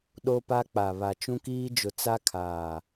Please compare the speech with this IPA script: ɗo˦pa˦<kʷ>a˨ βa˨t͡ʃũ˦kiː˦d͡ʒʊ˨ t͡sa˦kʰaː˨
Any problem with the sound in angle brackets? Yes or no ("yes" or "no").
yes